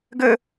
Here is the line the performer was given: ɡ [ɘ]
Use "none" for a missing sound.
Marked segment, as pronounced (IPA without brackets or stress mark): ɘ